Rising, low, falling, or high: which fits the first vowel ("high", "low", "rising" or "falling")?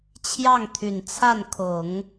falling